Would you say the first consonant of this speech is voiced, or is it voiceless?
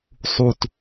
voiceless